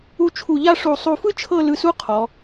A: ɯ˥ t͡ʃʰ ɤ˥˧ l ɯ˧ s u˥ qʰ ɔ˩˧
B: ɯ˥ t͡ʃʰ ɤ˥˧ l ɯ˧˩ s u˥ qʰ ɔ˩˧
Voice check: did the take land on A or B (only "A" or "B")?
A